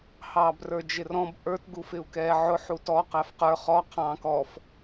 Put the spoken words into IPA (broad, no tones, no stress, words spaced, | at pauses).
hɑːbrə˞d͡ʒɪrɔ̃b ʔə˞t ɡufɪu̯kɛːʕʊ ħutɔ qæfqə˞ χɔ qʰɑ̃ːkɔf